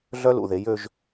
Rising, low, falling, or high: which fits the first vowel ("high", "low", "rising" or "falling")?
high